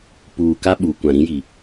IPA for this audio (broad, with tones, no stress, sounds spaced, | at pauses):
p uː˨ k a˦ ɓ uː˨ kʷ ã˨ ɾ ĩ˦ j i˨